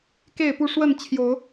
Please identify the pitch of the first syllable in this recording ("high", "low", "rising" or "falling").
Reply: falling